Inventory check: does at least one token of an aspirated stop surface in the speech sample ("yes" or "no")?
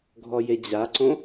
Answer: no